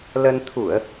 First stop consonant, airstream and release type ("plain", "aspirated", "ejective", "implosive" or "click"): aspirated